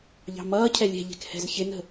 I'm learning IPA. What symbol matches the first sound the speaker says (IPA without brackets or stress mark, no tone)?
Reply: ʎ